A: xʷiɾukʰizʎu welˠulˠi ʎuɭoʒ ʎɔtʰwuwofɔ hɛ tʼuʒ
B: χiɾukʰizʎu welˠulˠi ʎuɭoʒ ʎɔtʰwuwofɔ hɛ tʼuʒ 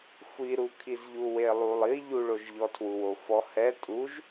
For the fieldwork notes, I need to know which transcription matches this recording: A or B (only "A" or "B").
A